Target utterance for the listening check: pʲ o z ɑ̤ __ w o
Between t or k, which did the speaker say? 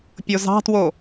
t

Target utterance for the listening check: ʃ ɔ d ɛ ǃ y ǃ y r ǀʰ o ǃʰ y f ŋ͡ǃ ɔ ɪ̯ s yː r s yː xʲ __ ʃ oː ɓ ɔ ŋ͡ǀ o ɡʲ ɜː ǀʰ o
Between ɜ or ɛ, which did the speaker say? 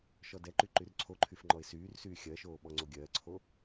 ɜ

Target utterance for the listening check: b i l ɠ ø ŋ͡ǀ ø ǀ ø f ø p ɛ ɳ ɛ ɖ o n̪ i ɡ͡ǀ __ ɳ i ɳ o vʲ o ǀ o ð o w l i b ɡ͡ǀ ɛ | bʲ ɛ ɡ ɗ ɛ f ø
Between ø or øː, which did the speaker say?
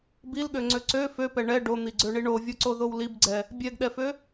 ø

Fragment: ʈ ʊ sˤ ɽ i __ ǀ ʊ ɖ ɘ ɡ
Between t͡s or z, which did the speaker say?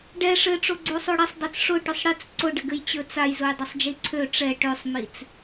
t͡s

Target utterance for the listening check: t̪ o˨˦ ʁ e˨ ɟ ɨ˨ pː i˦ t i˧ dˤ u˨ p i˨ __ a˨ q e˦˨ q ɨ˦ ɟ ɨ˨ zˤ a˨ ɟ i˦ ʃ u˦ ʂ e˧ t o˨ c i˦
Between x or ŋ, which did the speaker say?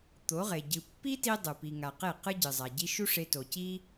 ŋ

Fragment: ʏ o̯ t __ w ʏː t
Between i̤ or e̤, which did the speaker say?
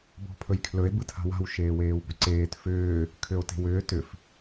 e̤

